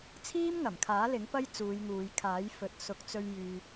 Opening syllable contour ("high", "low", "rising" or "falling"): high